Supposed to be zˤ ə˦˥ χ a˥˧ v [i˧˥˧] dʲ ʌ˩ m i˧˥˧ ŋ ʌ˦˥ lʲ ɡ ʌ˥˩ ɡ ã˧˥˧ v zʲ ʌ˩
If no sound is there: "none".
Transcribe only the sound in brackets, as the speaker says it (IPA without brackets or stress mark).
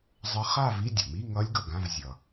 i˧˥˧